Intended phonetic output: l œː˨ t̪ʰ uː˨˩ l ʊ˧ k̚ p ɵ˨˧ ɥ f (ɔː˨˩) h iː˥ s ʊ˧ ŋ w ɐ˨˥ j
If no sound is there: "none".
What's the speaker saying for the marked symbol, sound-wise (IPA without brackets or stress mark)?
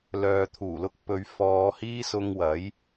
ɔː˧